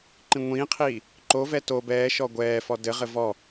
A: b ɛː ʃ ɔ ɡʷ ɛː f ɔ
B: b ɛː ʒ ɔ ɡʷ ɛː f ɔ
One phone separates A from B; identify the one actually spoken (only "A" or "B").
A